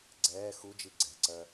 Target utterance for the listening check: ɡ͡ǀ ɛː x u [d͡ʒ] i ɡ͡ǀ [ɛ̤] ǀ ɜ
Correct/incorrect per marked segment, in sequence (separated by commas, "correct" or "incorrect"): correct, correct